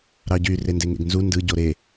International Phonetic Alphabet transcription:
ɾɑɟy rendeŋḛɡnzu ndɯɟo ɾe

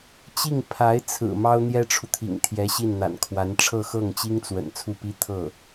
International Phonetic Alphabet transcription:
t͡ɕi˥˩ŋ pʰa˧˥ɪ̯t͡sʰɹ̩˨˩ mɑ˥ʊ̯n̪jɛ˥ʈ͡ʂʰu˨t̪ʰḭ˨˩ŋ t̪ʰjɛ˧˥ɕi˥˩nn̪a̰˨˩nkʰwa˧˥n ʈ͡ʂʰɤ˥˧xɤ˥˩ŋt͡ɕi˥ŋt͡swə̰˨˩n t͡sʰu˥˩pi˥ t̪ʰɤ˥˩

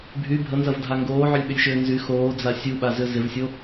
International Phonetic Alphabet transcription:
bʱy bʱənzɐvdʱa ŋɡoːʕʏlʲɓʏlʲʃʏː nzy xoːd͡za sʲuɓazʏ zɪvsʲo

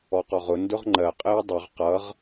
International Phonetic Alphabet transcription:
ɔqɔʁʊ ndʊʁŋ͡ǃɜ qʼɪːdˤʊʁ qʌʁ

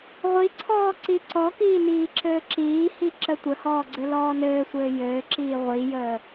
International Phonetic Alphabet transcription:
ʁʷiǀʰɔː ǀiǀɔkiː niːǁɘːǁiːhi ǁətʷəhɔː ɡ͡ǀɘlɔːnɘːsʷɘː jɘːǁiː ʁʷijəː

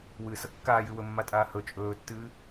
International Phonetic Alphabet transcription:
wɨːsʌ kːaːjɨː wɵmːatʼaː hɵ t͡ʃʼɵːtːɨː

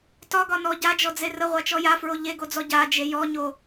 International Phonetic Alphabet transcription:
tɒɡɒnɔ ɟad͡ʒɔd͡ze rəʁʷat͡ʃɔ jafɹo ʎeɡod͡zɔ ɟad͡ʒe jɔɲo

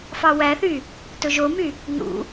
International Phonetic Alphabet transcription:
fɑwæθy | tɵʒomy | nṵ

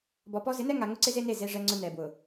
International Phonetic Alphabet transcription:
bɔ˨pɔ˦ zɪ˨˦nɛ˦ ŋa˨ŋʊ˦ ǀɪ˦ze˦ne˦˨ ze˨ʐɛ˨ŋ͡ǀʊ˨ nɛ˨bwʊ˨

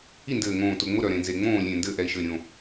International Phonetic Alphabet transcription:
i˦˨ndɘː˨˩ŋõː˨˩ tʊ˨˩ŋ͡mʊ˦˨ ɾœ˨˩ɾẽ˨˩ nze˨˩ŋ͡mõː˦˨lʲẽ˨˩ ndɘː˦˨ʔɛ˨˩i̯ʃɘː˨˩ ɾʲõ˨˩

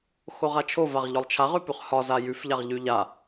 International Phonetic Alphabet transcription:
xoʁat͡ʃʰovaʁ ʎɔlˠt͡ʃʰaʁʉpʉχ hɒza jʉfʎaʁ ʎʉʎa

